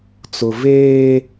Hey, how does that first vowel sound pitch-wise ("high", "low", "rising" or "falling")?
low